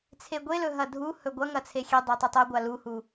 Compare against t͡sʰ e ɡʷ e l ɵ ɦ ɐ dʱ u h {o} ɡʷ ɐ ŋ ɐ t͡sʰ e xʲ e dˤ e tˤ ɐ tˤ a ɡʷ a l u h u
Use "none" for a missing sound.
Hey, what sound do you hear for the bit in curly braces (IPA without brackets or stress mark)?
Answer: ɵ